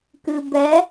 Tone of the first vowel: low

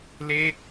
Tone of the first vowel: falling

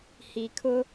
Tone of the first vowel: low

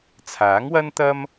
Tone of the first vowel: rising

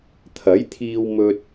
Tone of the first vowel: rising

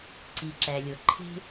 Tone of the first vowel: low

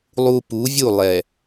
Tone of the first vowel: low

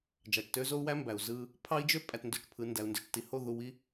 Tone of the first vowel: low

